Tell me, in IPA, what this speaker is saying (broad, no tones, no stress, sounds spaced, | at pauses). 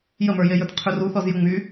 j ə m ə˞ j e j ə˞ t qʰ y r u θ ɔ z j ɵ ŋ͡m y